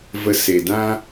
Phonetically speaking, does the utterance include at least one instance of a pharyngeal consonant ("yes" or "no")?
no